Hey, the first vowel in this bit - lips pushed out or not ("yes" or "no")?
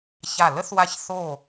no